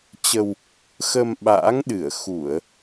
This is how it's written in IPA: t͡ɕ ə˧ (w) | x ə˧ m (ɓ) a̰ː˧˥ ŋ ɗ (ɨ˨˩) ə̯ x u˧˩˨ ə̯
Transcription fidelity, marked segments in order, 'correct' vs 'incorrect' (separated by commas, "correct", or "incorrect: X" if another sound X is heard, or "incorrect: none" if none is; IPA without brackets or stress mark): correct, correct, incorrect: ɨ˧˩